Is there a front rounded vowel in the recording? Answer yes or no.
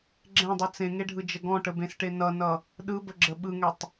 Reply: no